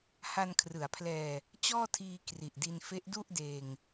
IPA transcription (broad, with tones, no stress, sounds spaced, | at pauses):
h a˧ n kʰ r ɯ˩˦ a̯ pʰ l ɛː˧ | t͡ɕ ɔː˥˩ tʰ iː˧ k r i˨˩ ʔ d i˧ n f e˦˥ ʔ d u˥˩ ʔ d eː˧ ŋ